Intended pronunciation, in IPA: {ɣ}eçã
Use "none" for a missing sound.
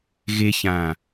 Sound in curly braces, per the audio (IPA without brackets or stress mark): ɣ